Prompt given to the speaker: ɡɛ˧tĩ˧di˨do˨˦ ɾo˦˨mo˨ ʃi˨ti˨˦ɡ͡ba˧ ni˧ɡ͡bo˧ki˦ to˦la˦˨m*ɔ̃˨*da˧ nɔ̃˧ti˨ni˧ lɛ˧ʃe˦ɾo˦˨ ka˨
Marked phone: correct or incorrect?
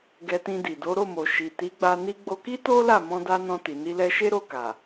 incorrect